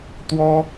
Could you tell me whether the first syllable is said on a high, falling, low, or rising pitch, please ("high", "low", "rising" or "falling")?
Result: high